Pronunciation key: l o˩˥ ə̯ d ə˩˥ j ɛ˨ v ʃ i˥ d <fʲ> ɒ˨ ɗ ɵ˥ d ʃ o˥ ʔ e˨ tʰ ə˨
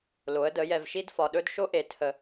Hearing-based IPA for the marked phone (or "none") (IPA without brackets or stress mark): f